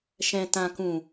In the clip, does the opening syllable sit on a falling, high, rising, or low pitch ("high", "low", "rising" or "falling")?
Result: low